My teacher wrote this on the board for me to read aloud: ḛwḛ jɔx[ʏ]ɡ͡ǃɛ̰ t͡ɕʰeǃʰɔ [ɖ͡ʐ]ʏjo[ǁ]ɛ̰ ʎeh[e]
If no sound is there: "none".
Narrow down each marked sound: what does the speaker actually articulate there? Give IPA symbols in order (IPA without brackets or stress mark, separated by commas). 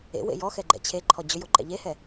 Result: ɛ, d͡ʑ, ǃ, ɛ